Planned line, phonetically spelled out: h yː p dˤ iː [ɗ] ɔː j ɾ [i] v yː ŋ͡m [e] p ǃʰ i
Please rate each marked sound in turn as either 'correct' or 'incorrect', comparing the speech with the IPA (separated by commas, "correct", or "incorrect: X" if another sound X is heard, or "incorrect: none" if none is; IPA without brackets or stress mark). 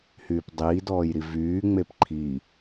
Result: incorrect: d, correct, correct